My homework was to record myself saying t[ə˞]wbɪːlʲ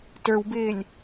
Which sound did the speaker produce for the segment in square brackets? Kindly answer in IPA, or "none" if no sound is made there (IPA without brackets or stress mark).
ə˞